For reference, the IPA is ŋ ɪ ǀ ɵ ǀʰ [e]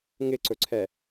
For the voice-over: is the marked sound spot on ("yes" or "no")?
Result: no